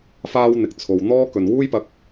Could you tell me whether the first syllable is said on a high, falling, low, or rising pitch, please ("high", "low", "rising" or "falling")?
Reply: high